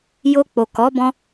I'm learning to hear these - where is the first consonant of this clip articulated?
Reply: palate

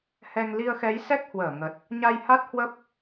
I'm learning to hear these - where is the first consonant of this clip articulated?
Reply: throat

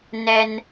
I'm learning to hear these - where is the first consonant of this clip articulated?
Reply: tongue tip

